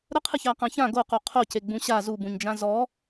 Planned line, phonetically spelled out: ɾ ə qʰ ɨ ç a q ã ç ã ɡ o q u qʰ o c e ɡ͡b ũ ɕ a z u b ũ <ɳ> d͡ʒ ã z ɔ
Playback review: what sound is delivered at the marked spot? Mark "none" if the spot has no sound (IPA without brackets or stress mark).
ɲ